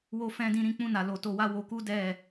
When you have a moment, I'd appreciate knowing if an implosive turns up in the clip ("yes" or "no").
no